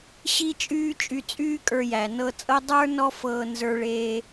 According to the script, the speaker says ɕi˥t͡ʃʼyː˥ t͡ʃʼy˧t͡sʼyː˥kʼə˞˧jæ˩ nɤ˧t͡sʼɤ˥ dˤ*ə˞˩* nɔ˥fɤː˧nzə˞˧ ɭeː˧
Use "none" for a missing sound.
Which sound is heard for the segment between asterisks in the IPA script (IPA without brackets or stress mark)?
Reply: ə˞˥